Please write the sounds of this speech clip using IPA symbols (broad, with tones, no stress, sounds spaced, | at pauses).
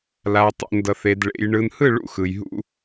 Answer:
l a˨ tˤ ṵ˨ n d ʌ˨ θ e˨ d ɭ ḛ˨ j ɳ ɯ˨ n h ɯ˦˨ ɭ ṵ˦˨ x ɯ˨ j ɦ ṵ˦